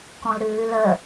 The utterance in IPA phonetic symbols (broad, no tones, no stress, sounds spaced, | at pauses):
k ɔ̃ l ɾ ʉː l ə